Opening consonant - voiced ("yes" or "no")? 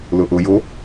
yes